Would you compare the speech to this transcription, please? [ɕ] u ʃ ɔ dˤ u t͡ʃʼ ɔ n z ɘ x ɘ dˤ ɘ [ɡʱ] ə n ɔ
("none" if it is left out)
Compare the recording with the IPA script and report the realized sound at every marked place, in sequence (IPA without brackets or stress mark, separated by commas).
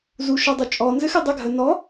z, ɡʱ